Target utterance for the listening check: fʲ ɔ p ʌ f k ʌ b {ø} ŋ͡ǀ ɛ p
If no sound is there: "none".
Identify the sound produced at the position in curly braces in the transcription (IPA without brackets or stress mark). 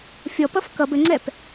ɘ